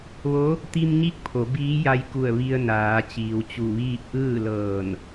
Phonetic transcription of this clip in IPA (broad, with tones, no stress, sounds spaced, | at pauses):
ʋ o˧˥ | t̪ i˧ m ɲ i˧˥ k̚ pʰ o˩˧ b iː˧˥ j a˧ j k u˧˩ ə̯ ʋ i˧ ə̯ n aː˩˧ t͡ɕ iː˩ w t͡ɕ u˧˩ ʋ iː˥˨ p̚ ʔ ɯː˥˨ l ɤː˧˩ n